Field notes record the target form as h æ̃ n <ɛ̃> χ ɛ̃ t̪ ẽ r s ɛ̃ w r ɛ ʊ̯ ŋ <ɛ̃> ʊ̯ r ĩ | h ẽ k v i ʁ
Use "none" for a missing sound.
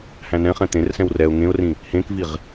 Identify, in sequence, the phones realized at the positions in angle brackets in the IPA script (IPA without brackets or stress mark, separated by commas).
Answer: ɛ̃, ẽ